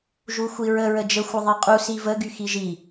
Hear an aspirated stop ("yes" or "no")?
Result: no